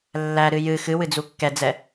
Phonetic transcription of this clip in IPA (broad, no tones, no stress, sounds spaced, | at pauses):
lː æ ɾ ɨ j ɨ x ɨ w ɨ d͡z u kː ɛ d͡z ɛ